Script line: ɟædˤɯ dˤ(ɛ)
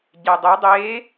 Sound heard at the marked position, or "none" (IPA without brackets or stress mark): e